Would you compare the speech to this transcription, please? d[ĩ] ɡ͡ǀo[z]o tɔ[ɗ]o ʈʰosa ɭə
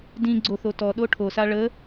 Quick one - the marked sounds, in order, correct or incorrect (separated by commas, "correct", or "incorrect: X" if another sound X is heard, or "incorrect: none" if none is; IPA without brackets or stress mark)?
correct, incorrect: θ, correct